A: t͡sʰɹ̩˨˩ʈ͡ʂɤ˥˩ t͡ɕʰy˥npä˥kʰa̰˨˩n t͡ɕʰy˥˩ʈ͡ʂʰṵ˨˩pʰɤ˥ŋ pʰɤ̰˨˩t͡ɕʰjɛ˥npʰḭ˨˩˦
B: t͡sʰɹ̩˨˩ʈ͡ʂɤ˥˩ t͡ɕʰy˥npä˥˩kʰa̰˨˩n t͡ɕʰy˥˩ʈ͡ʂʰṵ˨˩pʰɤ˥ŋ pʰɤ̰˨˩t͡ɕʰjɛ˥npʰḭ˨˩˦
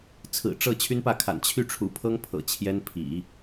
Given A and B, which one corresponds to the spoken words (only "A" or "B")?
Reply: B